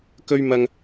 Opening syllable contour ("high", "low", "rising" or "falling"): high